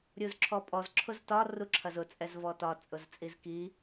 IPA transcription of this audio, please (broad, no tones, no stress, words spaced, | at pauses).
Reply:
ɾʲuzǁʰɔpʼɔz ǁʰʊztɒ ruǁʰɐzʊ t͡sʼɛzvɔtɒ t͡sʼʊzt͡sʼizki